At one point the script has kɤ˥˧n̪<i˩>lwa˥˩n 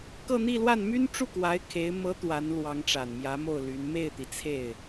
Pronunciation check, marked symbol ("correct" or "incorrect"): incorrect